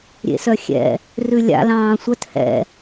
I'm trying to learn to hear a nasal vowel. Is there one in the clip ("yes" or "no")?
yes